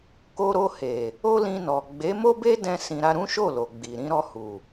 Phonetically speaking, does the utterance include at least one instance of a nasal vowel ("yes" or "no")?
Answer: yes